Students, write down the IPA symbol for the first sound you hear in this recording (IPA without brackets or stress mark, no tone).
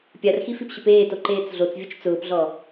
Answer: pʲ